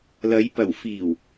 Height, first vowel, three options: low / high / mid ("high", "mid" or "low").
low